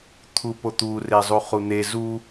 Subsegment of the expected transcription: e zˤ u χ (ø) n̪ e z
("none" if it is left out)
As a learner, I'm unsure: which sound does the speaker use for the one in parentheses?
u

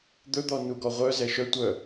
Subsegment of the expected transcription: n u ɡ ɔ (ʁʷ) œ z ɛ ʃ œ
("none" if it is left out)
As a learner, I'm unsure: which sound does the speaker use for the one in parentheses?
ʁʷ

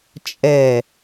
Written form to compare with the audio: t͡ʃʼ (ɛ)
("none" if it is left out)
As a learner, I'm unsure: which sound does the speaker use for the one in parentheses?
ɛ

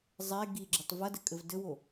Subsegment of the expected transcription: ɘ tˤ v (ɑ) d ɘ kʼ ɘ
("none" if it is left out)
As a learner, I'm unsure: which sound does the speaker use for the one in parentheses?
ɐ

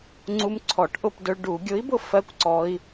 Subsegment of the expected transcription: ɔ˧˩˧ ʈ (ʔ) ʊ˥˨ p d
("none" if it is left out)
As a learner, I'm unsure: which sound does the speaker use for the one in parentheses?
ʔ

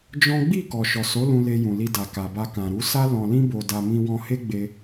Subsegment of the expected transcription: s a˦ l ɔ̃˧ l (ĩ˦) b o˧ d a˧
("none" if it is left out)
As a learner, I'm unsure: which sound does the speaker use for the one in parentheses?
ĩ˦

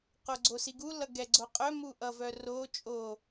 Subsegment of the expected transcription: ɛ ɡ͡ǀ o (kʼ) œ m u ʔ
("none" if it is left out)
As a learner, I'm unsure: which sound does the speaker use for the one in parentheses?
qʼ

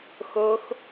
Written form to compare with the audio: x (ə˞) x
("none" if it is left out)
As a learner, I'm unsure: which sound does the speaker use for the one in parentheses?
ɤ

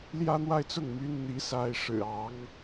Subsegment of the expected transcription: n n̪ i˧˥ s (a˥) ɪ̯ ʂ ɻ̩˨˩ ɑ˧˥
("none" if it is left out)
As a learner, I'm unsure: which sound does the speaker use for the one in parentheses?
a˥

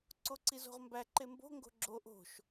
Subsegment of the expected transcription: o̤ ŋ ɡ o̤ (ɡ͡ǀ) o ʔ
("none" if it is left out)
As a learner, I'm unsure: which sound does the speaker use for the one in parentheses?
ɡ͡ǁ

